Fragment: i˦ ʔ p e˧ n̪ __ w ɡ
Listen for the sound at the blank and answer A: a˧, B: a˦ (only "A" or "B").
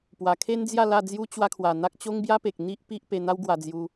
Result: B